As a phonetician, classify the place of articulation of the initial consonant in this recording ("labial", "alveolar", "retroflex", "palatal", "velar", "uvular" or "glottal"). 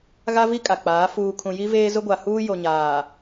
velar